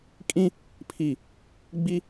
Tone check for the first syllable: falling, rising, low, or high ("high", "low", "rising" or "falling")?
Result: high